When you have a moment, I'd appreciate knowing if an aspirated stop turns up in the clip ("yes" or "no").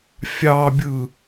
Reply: no